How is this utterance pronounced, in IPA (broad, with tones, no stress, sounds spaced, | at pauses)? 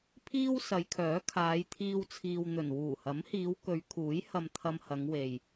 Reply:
pʰ iː˥ w s ɐ˨˧ j kʰ œː˨˥ kʰ aː˨˧ j t̪ʰ iː˥ w t͡sʰ iː˧ w n̪ ɵ˨˩ n w uː˨˩ h ɐ˨˥ m h iː˨˧ w k ɵ˨˧ ɥ kʰ uː˨˥ j h ɐ˧ m t̪ʰ ɐ˧ m h ɐ˨˧ ŋ w e˨ j